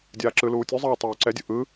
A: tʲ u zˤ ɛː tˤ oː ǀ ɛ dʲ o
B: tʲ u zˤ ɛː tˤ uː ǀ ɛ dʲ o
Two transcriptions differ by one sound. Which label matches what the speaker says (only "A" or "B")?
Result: A